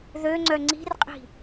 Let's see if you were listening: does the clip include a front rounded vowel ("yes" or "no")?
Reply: yes